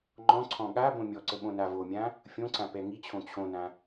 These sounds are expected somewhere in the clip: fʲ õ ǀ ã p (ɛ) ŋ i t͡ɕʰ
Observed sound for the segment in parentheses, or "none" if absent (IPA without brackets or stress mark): ɛ